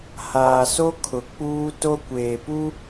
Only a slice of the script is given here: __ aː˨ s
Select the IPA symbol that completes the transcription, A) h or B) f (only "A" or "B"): A